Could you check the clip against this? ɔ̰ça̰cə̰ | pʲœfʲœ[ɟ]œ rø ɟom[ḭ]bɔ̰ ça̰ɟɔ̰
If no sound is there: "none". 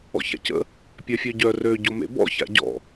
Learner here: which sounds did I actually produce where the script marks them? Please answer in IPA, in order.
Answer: ɟ, ḛ

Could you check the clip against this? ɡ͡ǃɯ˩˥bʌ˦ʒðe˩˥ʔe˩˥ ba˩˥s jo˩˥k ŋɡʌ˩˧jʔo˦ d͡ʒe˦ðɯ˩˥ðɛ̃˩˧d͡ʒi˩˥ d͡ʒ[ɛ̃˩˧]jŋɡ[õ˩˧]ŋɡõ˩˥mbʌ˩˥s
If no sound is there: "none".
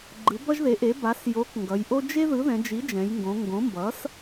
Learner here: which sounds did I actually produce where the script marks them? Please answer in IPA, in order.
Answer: ɛ̃˩˧, õ˩˧

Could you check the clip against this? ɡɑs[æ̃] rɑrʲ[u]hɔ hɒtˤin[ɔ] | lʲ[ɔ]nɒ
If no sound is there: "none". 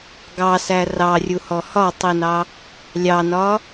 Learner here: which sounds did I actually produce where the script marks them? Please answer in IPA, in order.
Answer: æ, u, ɑ, ɑ

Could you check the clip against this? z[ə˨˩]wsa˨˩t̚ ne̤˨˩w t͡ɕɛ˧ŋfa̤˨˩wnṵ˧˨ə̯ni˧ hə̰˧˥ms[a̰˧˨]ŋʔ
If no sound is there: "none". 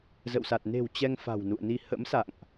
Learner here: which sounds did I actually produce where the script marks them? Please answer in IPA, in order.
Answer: ə̰˧˨, a̰˧˨

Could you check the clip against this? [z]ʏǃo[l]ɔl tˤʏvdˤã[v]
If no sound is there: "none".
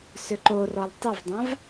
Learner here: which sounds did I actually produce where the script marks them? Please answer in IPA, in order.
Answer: s, r, v

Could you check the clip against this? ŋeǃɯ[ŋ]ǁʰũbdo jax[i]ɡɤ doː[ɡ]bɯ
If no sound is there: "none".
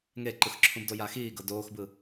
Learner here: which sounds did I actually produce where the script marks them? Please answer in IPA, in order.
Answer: x, iː, x

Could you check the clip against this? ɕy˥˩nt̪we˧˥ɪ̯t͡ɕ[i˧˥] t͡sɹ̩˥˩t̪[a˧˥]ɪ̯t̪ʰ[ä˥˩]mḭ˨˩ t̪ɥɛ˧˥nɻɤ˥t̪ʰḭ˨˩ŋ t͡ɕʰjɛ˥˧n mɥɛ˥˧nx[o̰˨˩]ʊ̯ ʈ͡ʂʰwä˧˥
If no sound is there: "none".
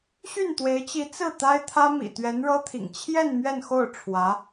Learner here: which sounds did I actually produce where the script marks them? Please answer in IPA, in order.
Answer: i˧˥, a˥, ä˥, o˥˩

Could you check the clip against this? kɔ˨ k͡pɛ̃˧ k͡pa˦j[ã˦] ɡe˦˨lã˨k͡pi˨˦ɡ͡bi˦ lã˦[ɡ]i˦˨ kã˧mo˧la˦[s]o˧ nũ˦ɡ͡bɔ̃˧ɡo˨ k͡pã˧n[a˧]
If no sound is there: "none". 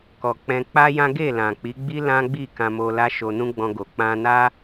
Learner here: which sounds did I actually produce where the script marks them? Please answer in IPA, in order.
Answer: ã˦, ɡ͡b, ʃ, a˦

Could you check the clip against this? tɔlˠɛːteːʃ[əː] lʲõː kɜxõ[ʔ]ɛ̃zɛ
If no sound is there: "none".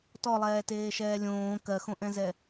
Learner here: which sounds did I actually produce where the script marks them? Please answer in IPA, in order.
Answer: ɛː, ʔ

